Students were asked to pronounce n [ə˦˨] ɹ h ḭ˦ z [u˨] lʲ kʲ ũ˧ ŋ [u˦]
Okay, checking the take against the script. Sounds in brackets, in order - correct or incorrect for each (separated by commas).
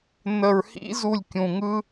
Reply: incorrect, incorrect, incorrect